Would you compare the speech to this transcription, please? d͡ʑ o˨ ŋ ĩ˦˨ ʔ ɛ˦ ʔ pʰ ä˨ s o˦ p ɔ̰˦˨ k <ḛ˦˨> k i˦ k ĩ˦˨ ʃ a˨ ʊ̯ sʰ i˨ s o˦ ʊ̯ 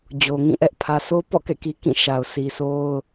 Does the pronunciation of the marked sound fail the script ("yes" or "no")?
yes